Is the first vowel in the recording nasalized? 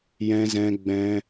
yes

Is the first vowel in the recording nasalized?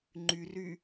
no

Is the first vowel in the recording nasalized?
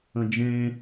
yes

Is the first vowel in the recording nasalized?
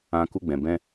yes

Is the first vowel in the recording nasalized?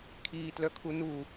no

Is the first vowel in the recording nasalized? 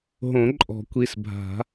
yes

